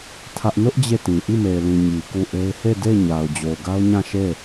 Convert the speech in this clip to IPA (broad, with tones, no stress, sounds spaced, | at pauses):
tʰ ä˦ ʔ n ʊ˦ ʔ d͡ʑ e˦˨ t ĩ˨ ʔ i˦˨ m e˨ ɪ̯ l ĩ˨ ɲ i˨ k u˦˨ ʔ e˦ ɪ̯ h e˦˨ d e˦˨ ɪ̯ ɲ a˨ ʊ̯ d͡ʑ o˨ ʊ̯ ɡ a˦ ʊ̯ ɲ ã˦˨ ʃ e˦˨